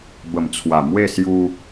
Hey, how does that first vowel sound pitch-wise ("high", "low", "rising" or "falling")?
low